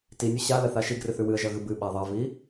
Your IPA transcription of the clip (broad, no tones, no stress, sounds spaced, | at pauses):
t i nʲ ʉ ɕ a l ɐ θ a ʃ i ɡ r ɨ θ ʉ w ɨ ə̯ ʒ ɐ ɣ ɨ b ɨ ɓ a ðˤ ɐ v i